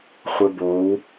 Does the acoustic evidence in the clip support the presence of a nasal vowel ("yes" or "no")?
no